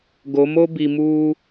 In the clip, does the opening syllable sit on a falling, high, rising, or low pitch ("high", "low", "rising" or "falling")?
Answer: rising